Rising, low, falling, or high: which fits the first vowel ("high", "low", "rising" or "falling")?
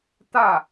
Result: falling